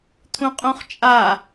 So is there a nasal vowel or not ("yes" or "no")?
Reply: yes